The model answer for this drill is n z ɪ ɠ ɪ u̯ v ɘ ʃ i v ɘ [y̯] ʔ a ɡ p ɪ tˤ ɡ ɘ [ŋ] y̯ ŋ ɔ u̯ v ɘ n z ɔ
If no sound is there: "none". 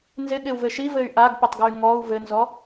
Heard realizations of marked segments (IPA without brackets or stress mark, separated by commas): y̯, none